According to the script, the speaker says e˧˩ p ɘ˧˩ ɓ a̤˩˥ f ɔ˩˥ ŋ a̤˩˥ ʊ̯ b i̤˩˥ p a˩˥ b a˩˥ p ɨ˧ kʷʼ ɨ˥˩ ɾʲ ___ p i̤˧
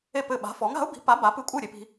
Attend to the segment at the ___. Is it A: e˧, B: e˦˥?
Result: A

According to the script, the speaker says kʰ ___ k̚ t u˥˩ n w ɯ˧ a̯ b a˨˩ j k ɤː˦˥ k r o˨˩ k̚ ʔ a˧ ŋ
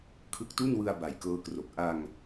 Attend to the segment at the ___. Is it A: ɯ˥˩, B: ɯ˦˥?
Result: B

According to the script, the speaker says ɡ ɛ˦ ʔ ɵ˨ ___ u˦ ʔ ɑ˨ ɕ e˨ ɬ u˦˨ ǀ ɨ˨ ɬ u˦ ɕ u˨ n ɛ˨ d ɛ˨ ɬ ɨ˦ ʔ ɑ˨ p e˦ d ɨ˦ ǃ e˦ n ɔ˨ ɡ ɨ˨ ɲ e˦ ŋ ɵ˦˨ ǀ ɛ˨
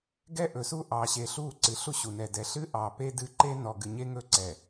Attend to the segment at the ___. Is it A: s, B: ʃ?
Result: A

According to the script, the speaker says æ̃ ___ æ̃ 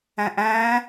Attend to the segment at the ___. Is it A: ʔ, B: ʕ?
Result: A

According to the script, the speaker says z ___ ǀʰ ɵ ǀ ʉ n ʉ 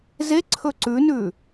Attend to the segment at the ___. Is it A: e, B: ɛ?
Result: A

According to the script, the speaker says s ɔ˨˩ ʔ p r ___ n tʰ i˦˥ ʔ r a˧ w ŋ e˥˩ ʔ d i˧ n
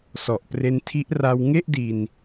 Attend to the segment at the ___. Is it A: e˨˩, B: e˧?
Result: B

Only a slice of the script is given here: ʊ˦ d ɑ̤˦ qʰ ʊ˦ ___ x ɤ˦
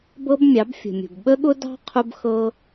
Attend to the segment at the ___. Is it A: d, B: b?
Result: B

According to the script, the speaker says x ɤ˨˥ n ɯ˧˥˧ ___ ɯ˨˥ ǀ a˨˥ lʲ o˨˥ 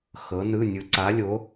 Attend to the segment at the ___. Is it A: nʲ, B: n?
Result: A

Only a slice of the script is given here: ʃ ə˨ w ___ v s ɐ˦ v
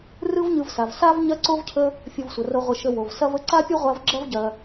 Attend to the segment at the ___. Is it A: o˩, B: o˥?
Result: A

